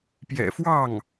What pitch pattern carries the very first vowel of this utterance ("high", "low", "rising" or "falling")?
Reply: low